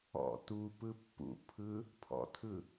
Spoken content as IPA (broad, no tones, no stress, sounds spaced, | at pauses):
ɔ̰ t u p ɯ pː ṵ pʰ ɯ | pʰ ɔ̰ tʰ ɯ